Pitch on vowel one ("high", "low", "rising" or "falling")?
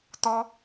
high